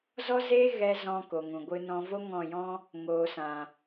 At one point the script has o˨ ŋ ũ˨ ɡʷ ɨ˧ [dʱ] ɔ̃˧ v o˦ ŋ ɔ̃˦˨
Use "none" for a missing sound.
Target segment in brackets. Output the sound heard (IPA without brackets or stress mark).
n